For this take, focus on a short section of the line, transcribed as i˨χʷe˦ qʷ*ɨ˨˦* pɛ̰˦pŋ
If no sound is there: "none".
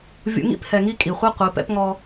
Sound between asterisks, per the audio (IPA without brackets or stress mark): ɨ˨˦